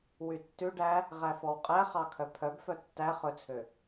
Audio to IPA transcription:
w y tː ʉ ɖ æ | ʁ æ f ɔ w qʼ æ χ ɑ kʰ œ pʰ œ b f œ tː æ χ ɵ t͡sʰ ø

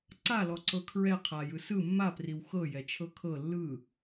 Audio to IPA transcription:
ǀ a l ɔ ǀ ɤ kʰ ɹ ɛ qʰ a j ɯ s ɯ mː a p r i w x ɤ j ɛ t͡ʃʰ ɤ kʰ ɤ lː ɯ

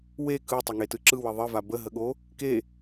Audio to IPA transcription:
w e k ɯ tˤ ə ŋ e t ɯ ǁ ɯ w ə ðˤ ə v a b ə ɦ ə ɠ o | k e

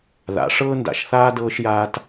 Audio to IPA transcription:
ð a̰˨˩˦ ʂ ɤː˦ n d a̰˨˩˦ ʃ θ aː˦ d ɤː˦ ʃ j aː˦ t

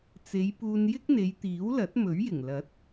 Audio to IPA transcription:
t͡s e˨˧ j p uː˧ n j ɪ˥ k̚ n̪ e˨˧ j t̪ iː˨˥ w l ɐ˨˥ t̚ m ɵ˨˥ ɥ j ɪ˨˩ ŋ l ɐ˨˥ t̚

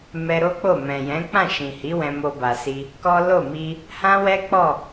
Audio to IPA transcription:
m ɛ˧ ɾ o˦ k͡p o˦˨ m ɛ̃˨ j ɛ̃˨˦ k͡p ã˦˨ ʃ ĩ˨ h i˨˦ w ɛ̃˧ m o˧ b a˨ s i˧ | k ɔ˦ l o˦˨ m i˧ | h ã˦ w ɛ˦ k͡p ɔ˦˨

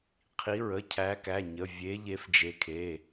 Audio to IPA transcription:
qʰ i˨˦ ɹ ə˩˧˩ cʰ æ˨˦ k æ˩˧˩ ɲ ə˩˧˩ vʲ e˨˦ ʎ e˨˦ f d͡ʒ e˨˦ kʰ e˩˧˩

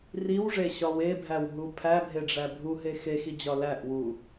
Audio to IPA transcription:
r i w ʐ e ɕ ɒ w e bʱ æ w ɦ u pʰ æ bʱ e ɖ͡ʐ æ bʱ u ɦ e x e x i d͡ʑ ɒ l æ ʔ w u

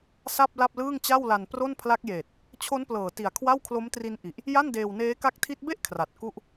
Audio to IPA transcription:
s a˥˩ p̚ l a˥˩ p̚ l ɯː˥˩ ŋ t͡ɕ a˥˩ w l a˧ n p r o˥˩ n pʰ l a˦˥ k̚ j eː˨˩ t̚ | t͡ɕʰ o˦˥ n p l ɤː˨˩ t i˨˩ a̯ kʰ w a˥˩ w kʰ l o˦˥ m t r i˦˥ n ʔ i˨˩ ʔ | j a˥˩ n d eː˧ w n eː˦˥ k a˦˥ k̚ tʰ i˦˥ t̚ b e˥˩ ʔ kʰ r a˨˩ t̚ k u˥˩ ʔ

